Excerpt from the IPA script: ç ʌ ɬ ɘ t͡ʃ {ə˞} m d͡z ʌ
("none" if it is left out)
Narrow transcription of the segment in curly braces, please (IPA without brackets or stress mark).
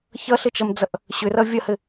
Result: ʌ